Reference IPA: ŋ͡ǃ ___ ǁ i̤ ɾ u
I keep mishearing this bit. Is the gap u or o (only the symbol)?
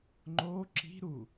o